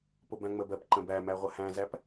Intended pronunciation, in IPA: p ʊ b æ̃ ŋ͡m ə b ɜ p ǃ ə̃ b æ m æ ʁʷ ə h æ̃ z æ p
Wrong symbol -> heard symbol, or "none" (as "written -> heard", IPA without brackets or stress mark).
none